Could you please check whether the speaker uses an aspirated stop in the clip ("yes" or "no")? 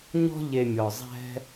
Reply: no